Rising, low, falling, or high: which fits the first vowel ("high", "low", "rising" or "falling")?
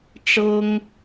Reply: high